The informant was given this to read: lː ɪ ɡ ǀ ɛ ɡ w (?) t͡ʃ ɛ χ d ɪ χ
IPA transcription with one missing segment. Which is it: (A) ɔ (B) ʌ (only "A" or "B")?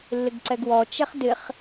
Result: A